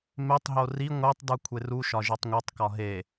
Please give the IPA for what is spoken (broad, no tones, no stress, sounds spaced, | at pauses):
m e tˤ ɦ o r i ŋʷ e tˤ d u kʷʰ e r u ʃ ɒ ʒ i tˤ ŋʷ e tˤ k ɒ ɦ e